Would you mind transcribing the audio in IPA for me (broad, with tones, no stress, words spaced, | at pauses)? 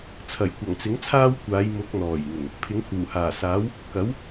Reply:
t͡sʰɐ˨˩jkʷɐ˨˩ŋt͡sɪ˨˥ŋt͡sʰaː˥w kʷaː˨˧jmʊ˨˥k̚ n̪ɔː˨˩jn̪ɪ˨˩ŋ | pʰɪ˨˥ŋhuː˨˩ haː˨˩saː˨˥w | kɐ˨˥w